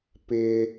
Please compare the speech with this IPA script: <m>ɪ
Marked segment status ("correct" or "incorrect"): incorrect